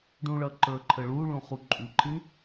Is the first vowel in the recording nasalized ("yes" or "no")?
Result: yes